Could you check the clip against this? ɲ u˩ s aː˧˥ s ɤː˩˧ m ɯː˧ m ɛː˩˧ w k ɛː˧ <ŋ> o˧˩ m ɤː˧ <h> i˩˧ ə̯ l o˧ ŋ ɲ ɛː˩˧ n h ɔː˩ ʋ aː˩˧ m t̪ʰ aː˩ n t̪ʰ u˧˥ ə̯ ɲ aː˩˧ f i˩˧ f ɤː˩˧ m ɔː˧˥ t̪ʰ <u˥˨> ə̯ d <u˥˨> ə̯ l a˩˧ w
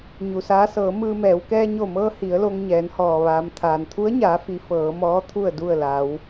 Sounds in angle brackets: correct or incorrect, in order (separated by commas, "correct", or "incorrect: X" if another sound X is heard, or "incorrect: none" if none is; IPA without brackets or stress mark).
incorrect: ɲ, correct, correct, correct